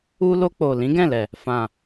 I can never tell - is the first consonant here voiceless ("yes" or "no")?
no